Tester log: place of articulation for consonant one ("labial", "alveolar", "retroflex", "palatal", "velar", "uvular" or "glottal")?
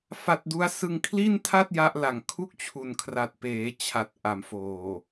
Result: labial